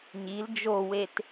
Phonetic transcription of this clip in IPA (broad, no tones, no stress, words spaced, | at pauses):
ɲil d͡ʒowet